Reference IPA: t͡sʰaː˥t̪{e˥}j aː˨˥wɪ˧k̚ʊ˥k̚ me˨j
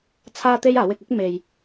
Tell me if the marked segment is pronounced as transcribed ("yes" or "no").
yes